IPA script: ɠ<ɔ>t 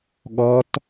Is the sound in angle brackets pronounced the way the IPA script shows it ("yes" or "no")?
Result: yes